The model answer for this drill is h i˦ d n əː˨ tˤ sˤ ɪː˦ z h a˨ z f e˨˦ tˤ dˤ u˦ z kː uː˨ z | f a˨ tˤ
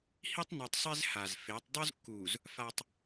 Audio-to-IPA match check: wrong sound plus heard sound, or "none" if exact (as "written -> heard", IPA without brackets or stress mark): d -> tˤ